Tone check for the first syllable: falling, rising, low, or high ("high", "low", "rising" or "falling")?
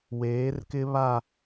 rising